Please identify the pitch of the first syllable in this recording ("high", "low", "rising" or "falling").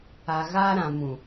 low